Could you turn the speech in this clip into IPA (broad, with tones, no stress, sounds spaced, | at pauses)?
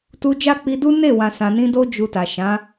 t u˧ d͡ʒ a˦ k͡p i˧ d u˦ n e˦˨ w ã˨ s ã˨ n ĩ˧ d o˦ d͡ʒ u˧ t a˨ ʃ ã˨˦